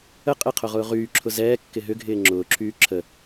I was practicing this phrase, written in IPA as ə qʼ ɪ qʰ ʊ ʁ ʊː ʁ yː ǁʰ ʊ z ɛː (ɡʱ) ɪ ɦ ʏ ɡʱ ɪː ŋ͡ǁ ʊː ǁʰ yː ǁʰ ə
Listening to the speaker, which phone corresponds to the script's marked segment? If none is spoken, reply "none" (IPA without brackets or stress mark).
kː